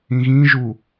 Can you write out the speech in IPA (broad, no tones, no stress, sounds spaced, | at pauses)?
ĩ ɣ ĩ ʒ u